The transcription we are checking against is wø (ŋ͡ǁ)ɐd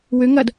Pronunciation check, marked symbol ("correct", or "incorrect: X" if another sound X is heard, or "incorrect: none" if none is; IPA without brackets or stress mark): incorrect: ŋ